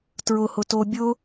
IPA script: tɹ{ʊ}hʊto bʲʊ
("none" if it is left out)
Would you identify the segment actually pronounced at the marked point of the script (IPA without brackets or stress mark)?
ʊ